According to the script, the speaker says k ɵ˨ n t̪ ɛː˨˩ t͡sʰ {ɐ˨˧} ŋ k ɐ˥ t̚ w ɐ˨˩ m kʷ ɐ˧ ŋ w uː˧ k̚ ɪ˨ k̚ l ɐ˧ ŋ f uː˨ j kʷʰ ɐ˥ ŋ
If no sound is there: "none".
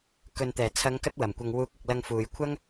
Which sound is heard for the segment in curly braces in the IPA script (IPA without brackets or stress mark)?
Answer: ɐ˨˧